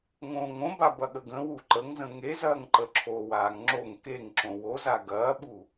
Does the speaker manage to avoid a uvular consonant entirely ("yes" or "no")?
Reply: yes